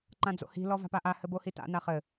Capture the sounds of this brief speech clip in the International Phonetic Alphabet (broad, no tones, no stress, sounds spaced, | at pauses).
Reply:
ǃ ã d͡z o̰ h i̤ l ɔ v a̤ p a ʔ a h ɘ b o h i t a̰ n a χ ɘ